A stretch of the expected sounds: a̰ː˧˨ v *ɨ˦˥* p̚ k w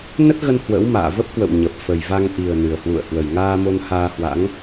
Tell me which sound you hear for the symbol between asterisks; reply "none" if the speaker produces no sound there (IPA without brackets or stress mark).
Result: ə˦˥